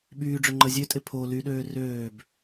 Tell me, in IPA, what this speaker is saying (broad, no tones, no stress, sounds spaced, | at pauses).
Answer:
ɓ yː ɖ͡ʐ ø ŋ͡ǃ ə zʲ ø tʼ ɪ pʰ o l y ɗ øː r øː b